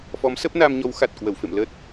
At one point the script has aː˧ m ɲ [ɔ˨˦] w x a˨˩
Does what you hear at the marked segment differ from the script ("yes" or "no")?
no